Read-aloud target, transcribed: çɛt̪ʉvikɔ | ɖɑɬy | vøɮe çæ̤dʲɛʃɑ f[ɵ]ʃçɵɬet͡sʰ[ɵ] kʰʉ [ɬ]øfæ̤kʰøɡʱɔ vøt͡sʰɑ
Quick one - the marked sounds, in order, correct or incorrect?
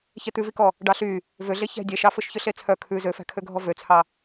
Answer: correct, incorrect: œ, incorrect: z

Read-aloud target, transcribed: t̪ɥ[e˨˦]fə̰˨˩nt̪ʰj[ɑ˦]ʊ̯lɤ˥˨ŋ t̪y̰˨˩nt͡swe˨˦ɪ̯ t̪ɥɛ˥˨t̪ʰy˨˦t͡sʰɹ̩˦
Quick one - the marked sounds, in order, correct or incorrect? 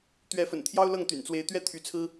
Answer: incorrect: ɛ˨˦, correct

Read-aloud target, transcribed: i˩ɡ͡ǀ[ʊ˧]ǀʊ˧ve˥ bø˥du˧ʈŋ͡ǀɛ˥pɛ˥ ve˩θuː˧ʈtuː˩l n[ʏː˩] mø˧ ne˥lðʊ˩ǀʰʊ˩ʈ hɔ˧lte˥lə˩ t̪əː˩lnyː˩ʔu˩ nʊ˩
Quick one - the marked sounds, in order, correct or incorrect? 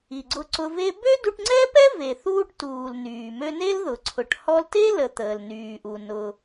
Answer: correct, incorrect: yː˩

